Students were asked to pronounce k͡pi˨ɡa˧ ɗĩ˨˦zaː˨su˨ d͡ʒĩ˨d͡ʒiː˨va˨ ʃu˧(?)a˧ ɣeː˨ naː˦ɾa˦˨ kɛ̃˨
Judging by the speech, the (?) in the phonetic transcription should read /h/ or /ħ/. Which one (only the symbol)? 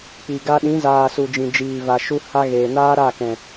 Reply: h